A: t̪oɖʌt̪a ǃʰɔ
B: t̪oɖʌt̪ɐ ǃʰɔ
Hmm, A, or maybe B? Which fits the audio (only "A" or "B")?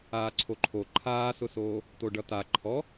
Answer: A